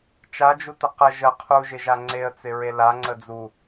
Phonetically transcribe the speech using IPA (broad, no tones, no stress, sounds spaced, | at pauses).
t͡ʃ a d͡ʒ u t ə q ə ʒ ə qʰ u ʒ ɪ ʒ a ŋ͡ǀ e ə̯ t͡s ɪ ɹ e l a ŋ͡ǀ ə d͡z u